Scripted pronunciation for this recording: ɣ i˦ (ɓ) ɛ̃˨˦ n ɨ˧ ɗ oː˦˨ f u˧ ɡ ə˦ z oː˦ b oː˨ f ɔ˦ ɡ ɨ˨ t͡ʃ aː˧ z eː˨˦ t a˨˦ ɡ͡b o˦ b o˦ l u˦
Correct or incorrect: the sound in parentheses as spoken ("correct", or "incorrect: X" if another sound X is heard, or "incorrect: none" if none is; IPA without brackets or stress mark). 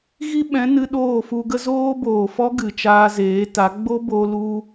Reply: correct